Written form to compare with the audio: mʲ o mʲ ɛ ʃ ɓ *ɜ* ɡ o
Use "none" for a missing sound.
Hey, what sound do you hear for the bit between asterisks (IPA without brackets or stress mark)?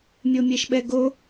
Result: ɛ